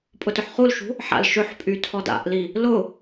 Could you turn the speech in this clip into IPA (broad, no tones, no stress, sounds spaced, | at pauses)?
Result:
pʼ ʊ t ʊ ħ χ u l ʃ ṳ | ħ a̰ l ʃ ø ħ pʼ y tʰ ɔ d a̰ ʔ l i | l ʊ